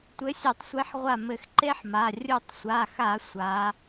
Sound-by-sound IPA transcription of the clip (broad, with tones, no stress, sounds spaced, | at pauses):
tʷ ɘ˨˦ sʲ e˧˩˧ tˤ sʷ e˨˦ ħ ʁʷ a˧˩ m ɘ˧˩ x ǃ e˦˥ ħ m a˩˧˩ rʲ u˧˩ tˤ sʷ a˩˧˩ x a˧˩˧ sʷ a˨˦